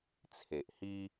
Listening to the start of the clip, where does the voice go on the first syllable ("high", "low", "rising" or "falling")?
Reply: low